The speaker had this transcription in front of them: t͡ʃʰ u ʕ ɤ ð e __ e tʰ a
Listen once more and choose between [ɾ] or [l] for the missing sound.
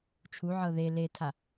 l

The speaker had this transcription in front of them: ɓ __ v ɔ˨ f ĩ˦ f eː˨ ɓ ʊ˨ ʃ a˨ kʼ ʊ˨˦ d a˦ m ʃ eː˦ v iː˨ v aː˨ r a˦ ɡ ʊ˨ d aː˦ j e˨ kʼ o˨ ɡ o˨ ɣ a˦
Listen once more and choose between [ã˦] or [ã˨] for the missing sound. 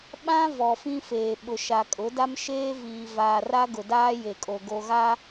ã˦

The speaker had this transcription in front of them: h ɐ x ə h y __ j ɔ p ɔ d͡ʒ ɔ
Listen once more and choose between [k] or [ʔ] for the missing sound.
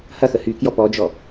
k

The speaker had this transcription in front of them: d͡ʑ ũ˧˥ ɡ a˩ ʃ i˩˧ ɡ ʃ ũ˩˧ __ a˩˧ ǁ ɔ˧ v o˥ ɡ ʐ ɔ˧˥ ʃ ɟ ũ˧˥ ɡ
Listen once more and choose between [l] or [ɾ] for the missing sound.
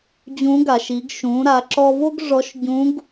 ɾ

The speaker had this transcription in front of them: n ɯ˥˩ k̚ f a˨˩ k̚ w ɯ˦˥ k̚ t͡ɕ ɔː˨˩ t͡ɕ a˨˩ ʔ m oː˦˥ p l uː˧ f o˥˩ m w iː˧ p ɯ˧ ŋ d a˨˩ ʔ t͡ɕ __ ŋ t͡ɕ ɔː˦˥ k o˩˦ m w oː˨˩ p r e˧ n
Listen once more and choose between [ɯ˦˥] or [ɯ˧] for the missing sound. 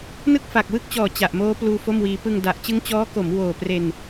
ɯ˦˥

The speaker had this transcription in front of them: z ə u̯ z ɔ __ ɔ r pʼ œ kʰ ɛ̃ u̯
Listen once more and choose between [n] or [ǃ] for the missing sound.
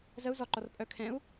ǃ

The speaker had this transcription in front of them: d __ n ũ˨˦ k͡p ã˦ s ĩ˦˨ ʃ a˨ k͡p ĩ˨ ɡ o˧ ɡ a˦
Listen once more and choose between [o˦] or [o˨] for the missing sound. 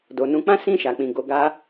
o˨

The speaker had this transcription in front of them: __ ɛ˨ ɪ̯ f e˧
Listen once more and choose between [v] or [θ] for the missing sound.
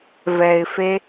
v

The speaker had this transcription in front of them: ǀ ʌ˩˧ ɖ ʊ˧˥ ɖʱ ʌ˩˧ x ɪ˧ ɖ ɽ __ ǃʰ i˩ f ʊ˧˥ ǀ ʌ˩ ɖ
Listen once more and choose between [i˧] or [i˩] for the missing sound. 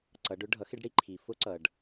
i˧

